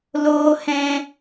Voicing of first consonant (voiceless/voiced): voiced